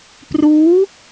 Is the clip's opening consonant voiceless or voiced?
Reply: voiceless